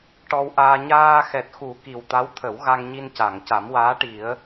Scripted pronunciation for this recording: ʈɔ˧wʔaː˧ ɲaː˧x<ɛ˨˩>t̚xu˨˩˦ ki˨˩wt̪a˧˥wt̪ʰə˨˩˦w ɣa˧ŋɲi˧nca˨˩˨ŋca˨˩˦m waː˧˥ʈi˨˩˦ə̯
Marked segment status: correct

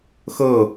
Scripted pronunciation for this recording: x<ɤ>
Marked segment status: correct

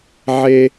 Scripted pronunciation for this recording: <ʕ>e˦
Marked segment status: correct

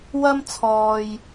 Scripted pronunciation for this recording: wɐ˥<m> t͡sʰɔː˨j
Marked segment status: correct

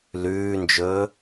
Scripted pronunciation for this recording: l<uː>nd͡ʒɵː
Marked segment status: incorrect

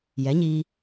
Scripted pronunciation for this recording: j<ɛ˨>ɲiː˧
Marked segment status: incorrect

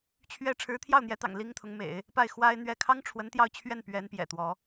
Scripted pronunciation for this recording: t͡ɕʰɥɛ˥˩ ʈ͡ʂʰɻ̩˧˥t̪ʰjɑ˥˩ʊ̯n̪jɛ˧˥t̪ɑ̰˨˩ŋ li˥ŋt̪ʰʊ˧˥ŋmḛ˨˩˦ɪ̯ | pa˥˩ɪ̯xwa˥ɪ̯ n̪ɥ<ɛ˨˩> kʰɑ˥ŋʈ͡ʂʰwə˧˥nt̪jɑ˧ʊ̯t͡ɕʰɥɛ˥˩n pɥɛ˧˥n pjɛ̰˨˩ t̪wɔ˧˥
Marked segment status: incorrect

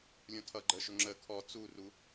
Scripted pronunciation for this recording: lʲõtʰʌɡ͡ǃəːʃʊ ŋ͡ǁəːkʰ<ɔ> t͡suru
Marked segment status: correct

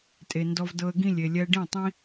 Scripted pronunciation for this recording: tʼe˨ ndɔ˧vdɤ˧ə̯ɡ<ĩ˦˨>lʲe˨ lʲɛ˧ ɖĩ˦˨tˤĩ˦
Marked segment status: correct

